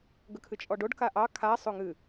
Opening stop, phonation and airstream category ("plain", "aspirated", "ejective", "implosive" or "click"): plain